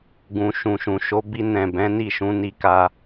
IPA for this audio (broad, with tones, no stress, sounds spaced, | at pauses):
ɡ ũ˨ ʃ ũ˨ ʃ ũ˨ ʃ o˨˦ b i˧ n ɛ̃˨ b ɛ̃˨˦ n i˦˨ ʃ ũ˨˦ n i˧ k a˧